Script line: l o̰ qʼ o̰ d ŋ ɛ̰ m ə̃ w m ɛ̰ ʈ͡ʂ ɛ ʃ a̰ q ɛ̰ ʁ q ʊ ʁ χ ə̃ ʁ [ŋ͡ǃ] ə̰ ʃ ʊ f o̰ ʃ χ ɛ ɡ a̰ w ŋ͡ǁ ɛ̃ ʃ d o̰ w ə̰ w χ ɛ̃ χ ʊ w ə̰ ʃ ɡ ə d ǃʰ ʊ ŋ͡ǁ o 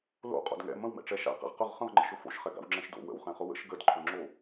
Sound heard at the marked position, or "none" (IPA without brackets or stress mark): ŋ͡ǃ